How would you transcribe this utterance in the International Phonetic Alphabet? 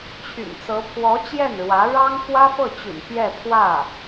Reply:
t͡ɕʰ y̰˨˩ n t͡s ɤ˧˥ pʰ w ɔ˧˥ t͡ɕ j ɛ˥˩ n ɻ w ä˧˥ ɻ ɑ˥ ŋ f w ä˥ f ɤ˥˩ t͡ɕ y̰˨˩ n p j ɛ˥˧ pʰ w ä˥˩

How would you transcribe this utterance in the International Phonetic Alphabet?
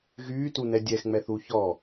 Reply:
ɣ yː t u n ɛ dʲ ɛ x ŋ͡m ɛ θ u ç ɔ

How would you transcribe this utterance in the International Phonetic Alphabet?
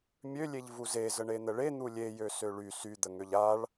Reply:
mʲ ø lʲ e ʎ v u z e z ə ɳ e n̪ ə ɭ e n̪ u lʲ e j ø s ø ɭ y s y d̪ ə ŋ ø ʎ a ɭ

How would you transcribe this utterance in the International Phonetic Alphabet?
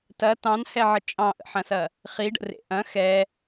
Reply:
t ɐ t ɑ̃ n h ɛ ʕ ə t͡ʃʼ ɑ̃ ʔ ə̰ ħ ɐ̃ s ɐ | χ i ɖ ə̰ r ḛ ʔ ɐ̃ x ɛ

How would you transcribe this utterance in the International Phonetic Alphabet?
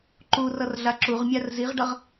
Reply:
ǃ u r ʌ r ɮ a ǁ u ʁ mʲ a r z i ʁ ɖ ʌ ʁ

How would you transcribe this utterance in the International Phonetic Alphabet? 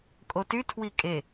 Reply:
kʼ o t y tʰ w i kʼ e

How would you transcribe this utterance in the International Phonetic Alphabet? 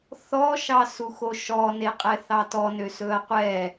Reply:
θ ɔ ʃ ɑ s u x o ʃ ɔ n e qʼ ɛ θ ɑ t ɔ n ø s ɵ ɐ̯ qʷ ɛ

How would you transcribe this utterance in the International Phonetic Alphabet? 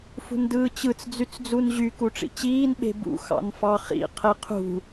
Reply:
f ṳ n d ɯː t͡ɕ ɯ t͡s d͡z y t͡s d͡z u n ʑ y k u ʈ͡ʂ ḭ t͡ɕ iː n ɓ e̤ b ṵ x ɑ̰ n f ɑ χ ḭ qʰ e qʰ ṳ

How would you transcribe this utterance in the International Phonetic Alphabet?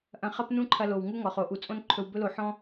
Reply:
ʔ ɐ̃˧ χ ɐ˦ p n ũ˦ ǃʰ ɐ˧ l o˨ w ŋ u˦ ŋ ɔ˨ χ o˨˦ ʔ u˨ t͡sʼ õ˦ n ǃʰ ɵ˧ w b ɵ˦ l o˧ ħ ɔ̃˦

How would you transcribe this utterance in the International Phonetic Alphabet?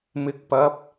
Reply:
m ɪ˨˥ k̚ p ɐ˨˥ p̚

